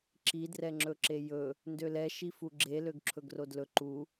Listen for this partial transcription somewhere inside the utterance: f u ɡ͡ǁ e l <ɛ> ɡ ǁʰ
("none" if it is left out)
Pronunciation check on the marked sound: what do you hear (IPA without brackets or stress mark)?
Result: ø